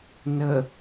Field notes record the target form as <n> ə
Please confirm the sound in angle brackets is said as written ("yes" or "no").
yes